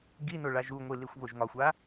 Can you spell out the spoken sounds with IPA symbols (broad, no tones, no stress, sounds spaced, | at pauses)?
ɡ i n o ɭ a ʒ u ŋʷ i l i xʷ β o ʒ ŋ ɒ xʷ a